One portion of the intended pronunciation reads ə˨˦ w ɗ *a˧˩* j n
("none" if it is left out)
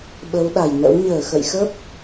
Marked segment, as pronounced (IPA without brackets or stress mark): a˧˩